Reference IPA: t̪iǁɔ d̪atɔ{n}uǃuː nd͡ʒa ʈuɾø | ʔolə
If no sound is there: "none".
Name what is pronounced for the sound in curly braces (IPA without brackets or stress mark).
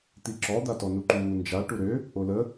n